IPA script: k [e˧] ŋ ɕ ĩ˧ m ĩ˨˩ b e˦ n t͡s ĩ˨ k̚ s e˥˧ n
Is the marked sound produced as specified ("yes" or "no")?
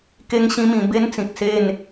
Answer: yes